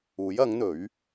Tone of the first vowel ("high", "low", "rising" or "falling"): rising